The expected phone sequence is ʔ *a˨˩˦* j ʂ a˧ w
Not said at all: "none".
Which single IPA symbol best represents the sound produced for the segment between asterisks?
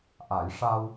a˨˩˦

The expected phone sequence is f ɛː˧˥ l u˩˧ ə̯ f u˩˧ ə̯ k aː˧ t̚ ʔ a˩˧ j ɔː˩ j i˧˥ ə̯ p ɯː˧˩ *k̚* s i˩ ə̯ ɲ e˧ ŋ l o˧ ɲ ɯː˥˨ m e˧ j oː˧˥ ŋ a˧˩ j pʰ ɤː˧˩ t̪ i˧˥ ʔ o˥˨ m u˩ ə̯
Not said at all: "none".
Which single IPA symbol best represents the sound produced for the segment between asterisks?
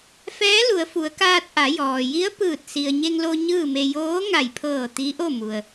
t̚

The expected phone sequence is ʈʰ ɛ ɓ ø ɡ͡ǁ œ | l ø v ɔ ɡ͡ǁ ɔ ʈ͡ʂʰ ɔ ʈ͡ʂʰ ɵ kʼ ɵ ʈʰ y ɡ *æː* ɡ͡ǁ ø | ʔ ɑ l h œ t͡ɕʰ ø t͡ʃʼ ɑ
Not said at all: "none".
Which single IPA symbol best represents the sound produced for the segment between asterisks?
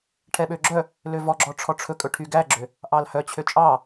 æ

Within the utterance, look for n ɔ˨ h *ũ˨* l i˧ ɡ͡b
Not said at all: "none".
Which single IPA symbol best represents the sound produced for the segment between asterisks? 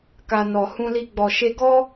ũ˧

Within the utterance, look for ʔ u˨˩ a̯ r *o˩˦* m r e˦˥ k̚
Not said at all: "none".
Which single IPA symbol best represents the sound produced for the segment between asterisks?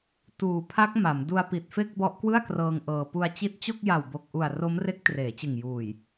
o˦˥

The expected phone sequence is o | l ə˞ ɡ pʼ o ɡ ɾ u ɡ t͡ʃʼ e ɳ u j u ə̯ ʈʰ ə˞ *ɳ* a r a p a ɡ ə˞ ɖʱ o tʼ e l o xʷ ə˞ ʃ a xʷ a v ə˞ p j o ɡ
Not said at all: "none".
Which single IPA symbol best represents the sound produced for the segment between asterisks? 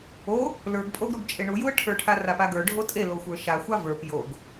ʈʰ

